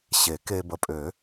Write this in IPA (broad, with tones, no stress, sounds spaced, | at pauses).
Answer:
ɕ e˨˩˦ k e˧ b ə˩˧˩ pʼ ø˨˩˦